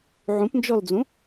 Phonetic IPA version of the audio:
ʕũpnd͡ʒɔld͡zũ

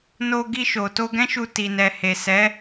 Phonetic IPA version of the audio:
no˧ ɡi˧ʃo˨ to˧ɡɛ̃˦ʃu˧ ti˨nɛ˨he˨ sɛ˨˦

